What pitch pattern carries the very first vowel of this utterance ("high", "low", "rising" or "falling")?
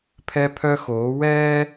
high